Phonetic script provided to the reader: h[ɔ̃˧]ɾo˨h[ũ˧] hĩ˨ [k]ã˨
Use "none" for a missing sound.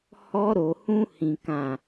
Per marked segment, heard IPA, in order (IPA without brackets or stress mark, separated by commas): ɔ˧, ũ˧, k